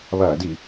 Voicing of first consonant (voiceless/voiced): voiced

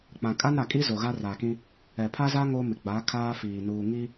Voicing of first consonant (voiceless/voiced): voiceless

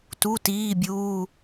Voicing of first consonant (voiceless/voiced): voiceless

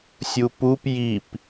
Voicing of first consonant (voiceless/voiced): voiceless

